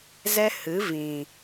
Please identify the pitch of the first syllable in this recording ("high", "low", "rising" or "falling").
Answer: high